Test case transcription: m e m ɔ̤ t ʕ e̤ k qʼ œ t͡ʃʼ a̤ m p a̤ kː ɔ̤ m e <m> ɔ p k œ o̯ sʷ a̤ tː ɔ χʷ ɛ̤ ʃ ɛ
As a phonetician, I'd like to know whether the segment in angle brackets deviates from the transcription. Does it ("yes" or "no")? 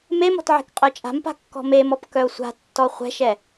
no